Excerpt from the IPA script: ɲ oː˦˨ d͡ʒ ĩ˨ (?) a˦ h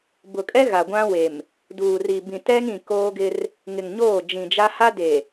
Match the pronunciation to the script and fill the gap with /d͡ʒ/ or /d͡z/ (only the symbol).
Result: d͡ʒ